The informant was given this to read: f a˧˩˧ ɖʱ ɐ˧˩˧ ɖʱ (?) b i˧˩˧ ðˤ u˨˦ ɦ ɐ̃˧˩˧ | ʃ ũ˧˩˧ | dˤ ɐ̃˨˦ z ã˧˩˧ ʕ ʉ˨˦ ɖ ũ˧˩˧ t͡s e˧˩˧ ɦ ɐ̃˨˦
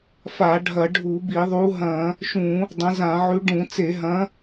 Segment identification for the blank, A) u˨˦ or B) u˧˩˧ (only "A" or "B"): B